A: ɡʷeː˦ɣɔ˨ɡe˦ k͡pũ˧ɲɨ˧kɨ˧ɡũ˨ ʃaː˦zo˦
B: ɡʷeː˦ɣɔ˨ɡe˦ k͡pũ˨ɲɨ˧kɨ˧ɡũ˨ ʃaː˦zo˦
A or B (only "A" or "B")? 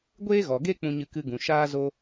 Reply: A